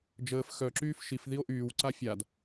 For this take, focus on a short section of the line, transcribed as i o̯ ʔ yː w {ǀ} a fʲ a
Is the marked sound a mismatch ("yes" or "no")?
no